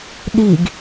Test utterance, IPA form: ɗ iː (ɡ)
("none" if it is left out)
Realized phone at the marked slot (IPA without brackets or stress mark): ɡ